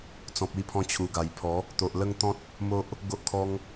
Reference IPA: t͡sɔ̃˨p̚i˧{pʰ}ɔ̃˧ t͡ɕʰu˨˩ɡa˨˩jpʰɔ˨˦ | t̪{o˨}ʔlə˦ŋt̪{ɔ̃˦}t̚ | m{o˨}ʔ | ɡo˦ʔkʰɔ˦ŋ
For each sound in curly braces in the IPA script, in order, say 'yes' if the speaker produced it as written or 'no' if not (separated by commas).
yes, yes, yes, no